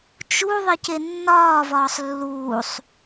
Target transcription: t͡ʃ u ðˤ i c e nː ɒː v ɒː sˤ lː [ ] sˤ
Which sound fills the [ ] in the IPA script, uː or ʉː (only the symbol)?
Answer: uː